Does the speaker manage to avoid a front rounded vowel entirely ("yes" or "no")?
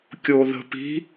yes